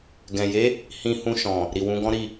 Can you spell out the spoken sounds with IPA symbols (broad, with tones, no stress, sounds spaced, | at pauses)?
ɡ ɛ̃˨ j e˨˦ | h ĩ˧ h ũ˧ ʃ ɔ̃˨ | ɾ i˨ w ũ˨˦ ɡ ɔ̃˦ ɾ i˦˨